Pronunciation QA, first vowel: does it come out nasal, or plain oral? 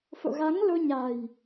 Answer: oral